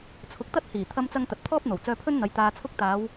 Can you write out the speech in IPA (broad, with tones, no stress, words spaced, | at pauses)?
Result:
t͡sʰʊ˨˥k̚t̪ɐ˥t̚hiː˨˩ t̪ʰɐ˧mt͡sɐ˧ŋ t̪ɐ˨t̚pʰɔː˥p̚ n̪o˨˩wt͡sœː˧pʰɵ˥nn̪ɐ˨˧j t̪aː˧t͡sʰʊ˥k̚ t̪aː˨˧w